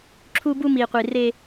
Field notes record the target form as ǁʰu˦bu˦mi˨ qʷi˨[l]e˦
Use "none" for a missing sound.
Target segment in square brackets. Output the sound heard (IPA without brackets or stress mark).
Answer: r